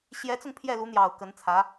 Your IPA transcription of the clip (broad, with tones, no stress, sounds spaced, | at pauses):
ɕ j ɛ˧˥ t͡s ʊ˧ ŋ pʰ j ɛ˥˩ l u˧˥ n̪ j ɑ˨˩ ʊ̯ k ə˧˥ n t͡sʰ ä˧˥